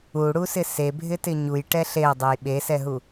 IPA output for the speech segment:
u ɽ u s ɪ s e bʱ ɪ t ɪ ɲ u j ʈ ɛ ɬ e ə̯ dˤ e j ɓ e s ɛ ɦ u

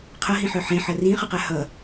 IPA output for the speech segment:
qʰ ʌ ɦ ĩ ħ œ ħ ẽ ħ ʌ r ĩ χ ʌ q a h ʌ

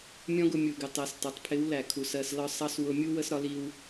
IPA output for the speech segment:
mʲ ɔ̃˦ ɡ ʊ˧ mʲ u˨ ɡ ɪ˨ tˤ ɜ˨ s t ɑ˨ tˤ pʰ ɪ˨˦ w l æ˨ kʰ u˨ s ɜ˧ s l ɒ˦ sˤ ɑ˦ s w ʊ˧ mʲ u˦ w ə˦ s ɾ ɒ˦ l i˦ w

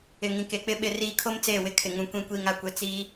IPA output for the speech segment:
ɪ˨ ŋ ĩ˨ k e˨ k͡p ɪ˦ ɓ ɪ˨ r iː˨ kʰ o˦ m t͡s eː˦˨ w ɪ˦ kʰ ɪ˨ ŋ ũ˨ kʷ ĩ˨ kʷ iː˨ ŋ a˨ kʷ e˨ t͡s iː˦

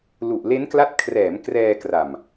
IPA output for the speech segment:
l u˨˩ ʔ l e˦˥ n k l a˦˥ t̚ kʰ r ɛː˩˦ m k r ɛː˧ k r a˨˩ m

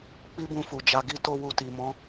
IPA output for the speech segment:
k͡p i˦ b ũ˧ f u˨ d͡ʒ a˧ ɡ i˦ t o˧ w u˧ t i˨ m ɔ̃˨˦

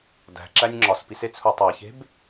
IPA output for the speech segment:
d æ̤ ǁ æ nʲ ŋ͡ǁ ɒ s p i s e t͡sʰ u tˤ æ ç e̤ b

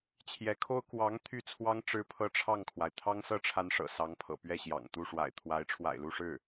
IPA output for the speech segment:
t͡ɕʰ j ɛ˧˥ kʰ o˥ ʊ̯ k w ɑ˧˥ ŋ t̪ʰ y˥ t͡sʰ w ɑ˥ ŋ ʈ͡ʂ ɻ̩˥ pʰ ɤ˥ ʈ͡ʂʰ ɑ˥˩ ŋ kʰ w a˩ ɪ̯ t̪ʰ ɑ˥ ŋ s ɤ˥ ʈ͡ʂʰ a˧˥ n ʂ ɤ̰˨˩ s ɑ˧˥ ŋ pʰ ɤ̰˨˩ p ɥ ɛ˥˩ ɕ j ɑ̰˨˩ ŋ t̪ u˥˩ ʂ w a̰˨˩ ɪ̯ t̪ʰ w a˧˥ ɪ̯ ʈ͡ʂʰ w a̰˨˩ ɪ̯ l u˥˧ ʂ ɻ̩˥˩

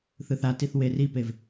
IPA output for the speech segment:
θ ɯ θ a t i θ w e r i p e v

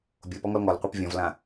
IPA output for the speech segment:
bʲ o p ɔ ŋ ɔ l ŋ ɔ l qʷ œ p vʲ ɔ̃ v l ã

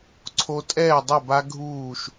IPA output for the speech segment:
ǀʰ o˧ tʼ ɛː˥˩ dˤ ɤ˥˩ b a˦˥ ɡʱ uː˥˩ ʃ

